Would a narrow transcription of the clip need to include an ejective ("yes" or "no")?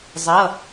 no